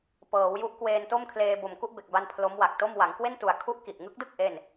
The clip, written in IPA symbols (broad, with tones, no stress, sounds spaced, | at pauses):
p ɤː˩˦ w j u˦˥ ʔ k w eː˧ n t o˥˩ m kʰ l eː˧ b o˨˩ m k u˥˩ ʔ b e˨˩ k̚ b a˧ n pʰ l o˦˥ m w a˨˩ k̚ t o˥˩ m w a˩˦ ŋ k w e˥˩ n t u˨˩ a̯ kʰ u˦˥ ʔ k i˨˩ ʔ ŋ ɯ˦˥ k̚ d ɯ˥˩ k̚ ʔ e˥˩ n